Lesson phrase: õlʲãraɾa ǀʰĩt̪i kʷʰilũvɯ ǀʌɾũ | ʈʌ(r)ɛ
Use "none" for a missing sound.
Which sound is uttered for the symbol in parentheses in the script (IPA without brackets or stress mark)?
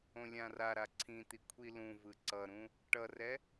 r